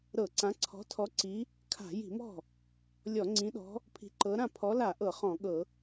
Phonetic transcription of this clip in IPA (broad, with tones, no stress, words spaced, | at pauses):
ɾɤ˧˩˧ǀã˨˦ ǀʰɔ̤˨˦tʰɔ˨˦ǀi˨˦ | kʰa̤˧˩˧ji̤˧˩˧mɔ̤˥˩ | lʲɔ˧˩˧ ŋ͡ǀĩ˨˦ɗɔ̤˨˦ | pʰi̤˨˦ǃɤ˨˦ɾã˥˩ pʰɔ˨˦la˧˩˧ ʔɤ˧˩˧χɔ̃˧˩˧ɠɤ˧˩˧